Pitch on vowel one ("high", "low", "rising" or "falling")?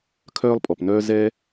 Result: high